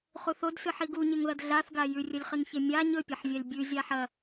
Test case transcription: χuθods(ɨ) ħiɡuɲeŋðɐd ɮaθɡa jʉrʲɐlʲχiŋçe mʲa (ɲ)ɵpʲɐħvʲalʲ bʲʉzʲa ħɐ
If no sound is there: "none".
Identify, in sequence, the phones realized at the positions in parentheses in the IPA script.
ɨ, ɲ

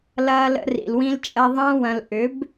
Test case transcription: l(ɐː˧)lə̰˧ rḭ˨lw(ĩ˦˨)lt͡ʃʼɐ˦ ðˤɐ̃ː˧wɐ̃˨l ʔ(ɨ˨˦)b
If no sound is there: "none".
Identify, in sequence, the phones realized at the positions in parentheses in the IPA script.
ɐː˧, ĩ˦, ʏ˨˦

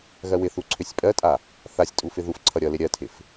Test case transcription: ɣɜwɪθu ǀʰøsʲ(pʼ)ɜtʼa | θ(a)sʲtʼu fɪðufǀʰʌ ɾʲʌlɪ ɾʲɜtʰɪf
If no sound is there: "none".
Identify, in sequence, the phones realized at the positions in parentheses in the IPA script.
pʼ, a

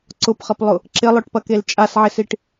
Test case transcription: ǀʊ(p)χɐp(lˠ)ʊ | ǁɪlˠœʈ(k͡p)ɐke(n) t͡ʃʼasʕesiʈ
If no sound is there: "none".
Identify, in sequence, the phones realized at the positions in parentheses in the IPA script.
p, lˠ, p, l

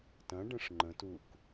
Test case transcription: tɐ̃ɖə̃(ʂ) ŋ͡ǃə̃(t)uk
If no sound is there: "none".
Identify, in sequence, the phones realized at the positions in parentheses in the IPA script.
ʂ, t

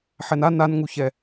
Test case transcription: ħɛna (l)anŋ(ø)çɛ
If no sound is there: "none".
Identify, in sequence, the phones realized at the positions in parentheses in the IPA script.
n, u

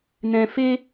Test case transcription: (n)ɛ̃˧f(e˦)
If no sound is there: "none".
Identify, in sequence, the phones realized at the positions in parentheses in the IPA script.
n, e˦

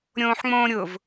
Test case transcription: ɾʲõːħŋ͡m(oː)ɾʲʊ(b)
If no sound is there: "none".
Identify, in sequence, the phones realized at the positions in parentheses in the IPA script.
õː, v

